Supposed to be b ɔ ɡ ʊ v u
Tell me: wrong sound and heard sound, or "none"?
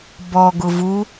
none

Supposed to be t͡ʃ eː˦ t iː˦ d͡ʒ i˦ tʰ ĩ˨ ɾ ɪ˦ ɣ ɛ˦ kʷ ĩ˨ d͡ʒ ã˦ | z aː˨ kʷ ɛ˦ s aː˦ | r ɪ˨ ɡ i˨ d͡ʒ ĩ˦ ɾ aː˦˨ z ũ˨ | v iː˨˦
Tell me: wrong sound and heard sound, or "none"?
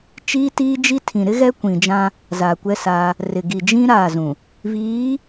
eː˦ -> iː˦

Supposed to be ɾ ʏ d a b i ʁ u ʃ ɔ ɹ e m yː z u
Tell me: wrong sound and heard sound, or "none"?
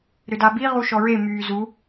none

